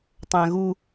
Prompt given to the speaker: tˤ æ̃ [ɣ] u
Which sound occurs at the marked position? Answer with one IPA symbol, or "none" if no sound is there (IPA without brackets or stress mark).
ɣ